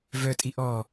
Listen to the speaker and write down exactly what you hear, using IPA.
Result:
v œ tʼ i ʔ ɔ

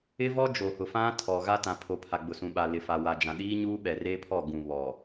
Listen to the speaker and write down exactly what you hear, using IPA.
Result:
ɪ˦ v ɔ˦ d͡ʒ o˨ h ʊ˨ f ã˦ tʰ ɔ˨ ɣ a˦ t ã˨ pʰ o˨ pʰ a˨ ɡ͡b ʊ˨ s ũ˨ ɓ a˨ l ɪ˨ f a˨ w a˨ d͡ʒ ã˨ ɗ iː˦ ɲ uː˦ ɓ ɛ˨ r eː˦ pʰ ɔ˦˨ ɡ ũ˨ β ɔ˨

